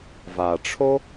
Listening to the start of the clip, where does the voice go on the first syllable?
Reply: low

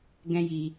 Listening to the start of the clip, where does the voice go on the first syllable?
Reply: high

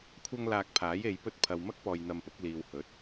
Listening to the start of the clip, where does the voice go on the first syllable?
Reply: high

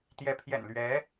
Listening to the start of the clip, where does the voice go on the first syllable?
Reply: rising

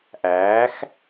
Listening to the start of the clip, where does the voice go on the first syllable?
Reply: rising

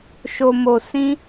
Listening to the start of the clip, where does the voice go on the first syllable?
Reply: low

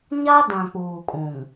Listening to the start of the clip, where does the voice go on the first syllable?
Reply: high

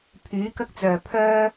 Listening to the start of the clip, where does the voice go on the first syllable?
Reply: rising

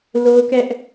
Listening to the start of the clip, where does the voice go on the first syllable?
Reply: high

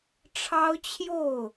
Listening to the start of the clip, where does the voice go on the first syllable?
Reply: high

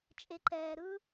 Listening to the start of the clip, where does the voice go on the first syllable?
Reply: rising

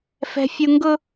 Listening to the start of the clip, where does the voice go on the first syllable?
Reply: high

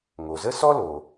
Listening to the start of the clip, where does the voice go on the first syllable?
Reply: low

